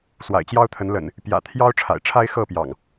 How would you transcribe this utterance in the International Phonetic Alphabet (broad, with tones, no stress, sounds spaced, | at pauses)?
s w a̰˨˩ ɪ̯ t͡ɕ j ɑ˦ ʊ̯ t̪ʰ ə˨˦ n l ə̰˨˩ n | p j ä̰˨˩ t̪ʰ j ɑ˦ ʊ̯ ʈ͡ʂʰ a̰˨˩ ɪ̯ ʈ͡ʂʰ a˦ ɪ̯ x ɤ˥˨ p j ɑ̰˨˩ ŋ